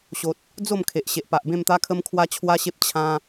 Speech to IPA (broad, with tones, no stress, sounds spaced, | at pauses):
ɕ o˨ t̚ | d͡z o˥˧ m kʰ e˨ ʔ ɕ e˨ ʔ p a˨ ʔ b ẽ˥˧ m t̪ a˦ kʰ ə˦ m kʰ w a˦ t͡ɕʰ w a˦ ɕ e˦ p̚ t͡ɕʰ ã˦